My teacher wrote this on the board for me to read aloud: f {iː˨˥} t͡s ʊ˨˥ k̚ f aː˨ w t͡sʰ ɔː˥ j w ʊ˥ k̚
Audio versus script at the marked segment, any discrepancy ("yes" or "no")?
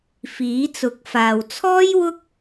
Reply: no